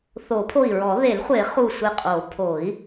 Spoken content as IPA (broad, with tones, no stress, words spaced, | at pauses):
θo˨˩˦pʰo˧˩i̯ɹɔ˨˩˦ ðe˨˩˦lχʷe˨˩˦ χu˧˩sʷe˧˩qʼo˨˩˦ pʰo˨˩˦i̯